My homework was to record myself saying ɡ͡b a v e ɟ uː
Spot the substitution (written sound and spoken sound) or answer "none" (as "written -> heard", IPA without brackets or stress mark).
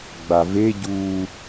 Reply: none